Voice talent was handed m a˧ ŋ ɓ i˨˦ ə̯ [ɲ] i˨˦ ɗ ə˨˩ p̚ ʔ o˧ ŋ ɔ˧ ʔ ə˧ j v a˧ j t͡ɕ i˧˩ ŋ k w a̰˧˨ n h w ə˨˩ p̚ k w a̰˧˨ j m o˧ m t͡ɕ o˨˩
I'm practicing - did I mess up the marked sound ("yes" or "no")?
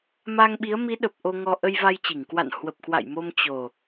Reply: yes